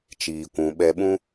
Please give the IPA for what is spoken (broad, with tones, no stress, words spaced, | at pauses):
t͡ʃiː˨ kʷũ˧ ɓɛ˧ɓũ˦